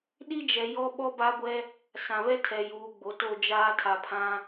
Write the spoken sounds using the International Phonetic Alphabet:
ɗ i˦ d͡ʒ ɛ˨ j ɔ˦ ɓ ɔ˦ b a˦ ɡʷ ɛ˦ | s ã˨ β ɛ˦ tʰ ɛ˨ j uː˨ ɡ͡b o˨ t o˦˨ d͡ʒ aː˦ tʰ a˨ pʰ ã˦

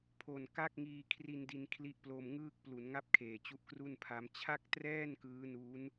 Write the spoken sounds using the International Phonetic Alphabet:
pʰ o˨˩ n k a˥˩ k̚ ŋ iː˧ kʰ r i˧ n d i˧ n kʰ l i˦˥ ʔ p l o˧ m ŋ ɯː˥˩ k̚ p l u˩˦ n ŋ a˥˩ p̚ kʰ eː˨˩ t͡ɕ u˦˥ ʔ k r u˥˩ n pʰ a˦˥ m t͡ɕʰ a˥˩ k̚ t r ɛː˥˩ n k ɯː˦˥ n u˦˥ n

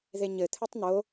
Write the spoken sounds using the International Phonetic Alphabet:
ð e ɲ ɘ t̪ʰ ɨ tˤ n̪ o

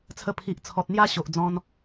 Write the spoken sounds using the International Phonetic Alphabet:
t͡sʰ ə˧ pʰ i˨ ʔ t͡sʰ ɔ˨ t̚ n̪ j a˥˧ ɕ o˨ ʔ d͡z ɔ̃˧ n

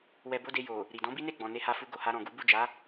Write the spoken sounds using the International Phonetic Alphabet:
w ɛ˧ b o˦ d e˧ j o˨ | ɾ i˨ d ɔ̃˨˦ b i˦ n e˦˨ ɡ͡b ɔ̃˨ n e˧ h a˧ f u˧ ɡ o˨ h a˧ ɾ ɔ̃˨ ɡ u˨˦ b u˦˨ d͡ʒ a˨˦

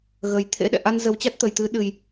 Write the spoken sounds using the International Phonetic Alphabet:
ɣ ə˨˩ j t̪ʰ ḛ˧˥ ɗ ɛ̰˧˨ ʔ a˧ n z ə˨˦ w t͡ɕ a˦˥ t̚ t̪ ə˨˩ j t̪ ɨ˨˦ ɗ ɨ˨˩ j

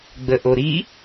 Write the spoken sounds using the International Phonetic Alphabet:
ɡ͡b ə ʔ o ɾ i

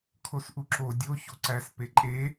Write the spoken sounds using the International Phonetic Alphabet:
kʰ o s ʔ u ǁ o dʲ o ç o ǀ æ s p e ǃʼ e

